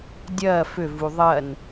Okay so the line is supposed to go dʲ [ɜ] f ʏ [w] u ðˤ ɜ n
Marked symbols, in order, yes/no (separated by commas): no, no